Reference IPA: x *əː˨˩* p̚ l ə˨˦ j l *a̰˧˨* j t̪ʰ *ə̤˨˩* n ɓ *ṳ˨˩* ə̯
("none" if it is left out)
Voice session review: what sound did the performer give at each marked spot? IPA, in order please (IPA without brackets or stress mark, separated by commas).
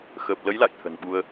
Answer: əː˨˩, a̰˧˨, ə̤˨˩, u˧